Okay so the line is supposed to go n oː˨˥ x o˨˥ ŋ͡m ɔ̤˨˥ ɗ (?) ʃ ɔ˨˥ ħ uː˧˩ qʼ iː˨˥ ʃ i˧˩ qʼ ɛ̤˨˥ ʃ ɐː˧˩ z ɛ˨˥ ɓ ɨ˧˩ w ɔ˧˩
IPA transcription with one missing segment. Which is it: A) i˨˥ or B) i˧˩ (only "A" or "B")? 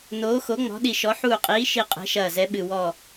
B